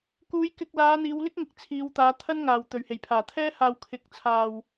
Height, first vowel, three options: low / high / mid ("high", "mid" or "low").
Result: high